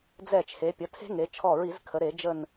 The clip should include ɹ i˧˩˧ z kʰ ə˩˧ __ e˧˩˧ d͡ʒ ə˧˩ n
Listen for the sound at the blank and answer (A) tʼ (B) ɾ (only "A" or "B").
B